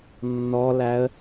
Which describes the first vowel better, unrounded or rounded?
rounded